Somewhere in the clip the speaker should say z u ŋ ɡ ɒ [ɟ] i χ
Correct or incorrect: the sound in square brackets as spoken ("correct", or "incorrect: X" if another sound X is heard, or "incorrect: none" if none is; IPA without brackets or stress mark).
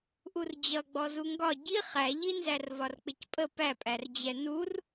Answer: correct